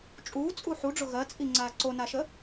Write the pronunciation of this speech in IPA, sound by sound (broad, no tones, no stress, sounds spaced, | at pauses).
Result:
t͡ʃʼ uː t͡sʼ u ħ u ɖ͡ʐ ʊ ɣ ɜ t͡sʼ i ŋ͡ǀ aː ǀ o n a ʃ ə